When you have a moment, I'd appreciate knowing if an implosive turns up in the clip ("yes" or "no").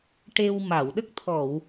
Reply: yes